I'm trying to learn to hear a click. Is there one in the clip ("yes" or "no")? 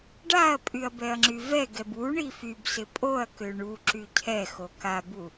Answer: yes